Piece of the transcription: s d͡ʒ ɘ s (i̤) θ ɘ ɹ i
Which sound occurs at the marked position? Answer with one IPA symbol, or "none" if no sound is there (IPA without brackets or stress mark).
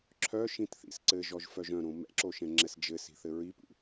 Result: i̤